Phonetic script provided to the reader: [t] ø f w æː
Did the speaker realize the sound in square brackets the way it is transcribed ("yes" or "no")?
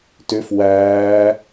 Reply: yes